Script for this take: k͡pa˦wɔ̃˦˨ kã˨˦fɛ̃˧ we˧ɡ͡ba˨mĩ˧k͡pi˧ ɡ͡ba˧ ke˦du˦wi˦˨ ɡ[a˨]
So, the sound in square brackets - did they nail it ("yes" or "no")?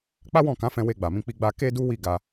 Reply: no